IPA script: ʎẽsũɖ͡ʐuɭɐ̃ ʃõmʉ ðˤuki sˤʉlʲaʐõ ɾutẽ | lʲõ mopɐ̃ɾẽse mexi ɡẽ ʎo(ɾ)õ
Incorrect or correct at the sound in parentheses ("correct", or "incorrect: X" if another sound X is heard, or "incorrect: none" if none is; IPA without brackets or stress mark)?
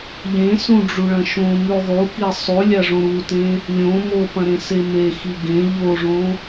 incorrect: ʐ